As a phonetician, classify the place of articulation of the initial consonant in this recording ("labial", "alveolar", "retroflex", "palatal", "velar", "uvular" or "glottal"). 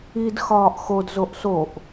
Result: alveolar